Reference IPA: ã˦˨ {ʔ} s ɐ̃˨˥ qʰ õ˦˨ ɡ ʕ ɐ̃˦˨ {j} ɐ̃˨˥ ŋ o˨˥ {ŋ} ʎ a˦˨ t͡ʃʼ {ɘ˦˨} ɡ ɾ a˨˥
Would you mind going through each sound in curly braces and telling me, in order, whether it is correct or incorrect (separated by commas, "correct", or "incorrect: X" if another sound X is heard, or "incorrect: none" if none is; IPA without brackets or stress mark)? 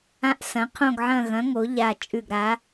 correct, incorrect: ɣ, incorrect: none, incorrect: ʉ˦˨